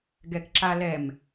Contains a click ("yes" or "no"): yes